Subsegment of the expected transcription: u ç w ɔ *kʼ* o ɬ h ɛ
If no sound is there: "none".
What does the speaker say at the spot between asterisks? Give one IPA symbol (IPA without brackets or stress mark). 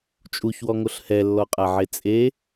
ŋ